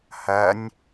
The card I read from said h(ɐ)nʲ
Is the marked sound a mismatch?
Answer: no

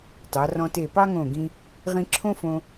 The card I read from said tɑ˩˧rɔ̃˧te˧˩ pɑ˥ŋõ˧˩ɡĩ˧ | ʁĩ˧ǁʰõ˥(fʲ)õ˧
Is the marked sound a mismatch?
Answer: yes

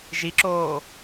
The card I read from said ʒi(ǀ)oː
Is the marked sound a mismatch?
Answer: yes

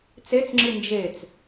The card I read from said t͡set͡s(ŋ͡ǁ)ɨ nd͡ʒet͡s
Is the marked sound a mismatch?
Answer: no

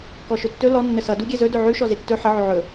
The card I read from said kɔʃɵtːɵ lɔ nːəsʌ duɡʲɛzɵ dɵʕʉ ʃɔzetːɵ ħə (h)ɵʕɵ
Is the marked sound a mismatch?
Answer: yes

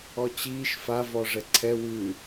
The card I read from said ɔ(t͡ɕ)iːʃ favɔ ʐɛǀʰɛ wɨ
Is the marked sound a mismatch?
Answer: no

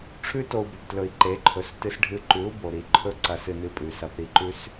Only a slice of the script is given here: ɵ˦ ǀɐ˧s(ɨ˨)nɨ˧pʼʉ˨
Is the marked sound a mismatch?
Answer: yes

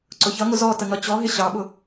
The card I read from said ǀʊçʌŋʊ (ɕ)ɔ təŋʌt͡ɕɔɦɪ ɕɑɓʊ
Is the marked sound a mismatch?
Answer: yes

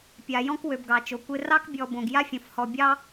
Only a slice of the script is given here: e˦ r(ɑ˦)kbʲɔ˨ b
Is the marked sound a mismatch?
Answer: no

